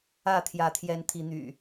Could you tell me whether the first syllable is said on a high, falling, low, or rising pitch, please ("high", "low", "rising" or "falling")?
falling